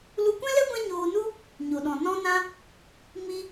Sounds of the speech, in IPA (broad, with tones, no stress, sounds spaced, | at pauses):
l u˧ kʷ ɛ̃˦ l ɛ˦ ɡʷ ɛ̃˦ ɲ oː˧ n u˦ | ɲ o˨ ɗ ɔ̃˨ n ɔ̃˧ n ã˧ | m i˧